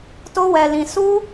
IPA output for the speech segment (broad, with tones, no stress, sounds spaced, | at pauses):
t o˦ w ɛ˧ l ĩ˧ s u˦